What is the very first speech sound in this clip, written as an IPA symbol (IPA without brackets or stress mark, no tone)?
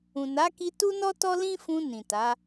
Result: ũ